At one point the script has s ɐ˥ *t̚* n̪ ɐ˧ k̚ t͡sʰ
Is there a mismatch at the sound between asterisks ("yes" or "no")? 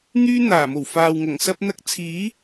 yes